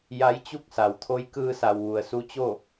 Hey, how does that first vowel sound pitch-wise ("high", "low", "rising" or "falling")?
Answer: rising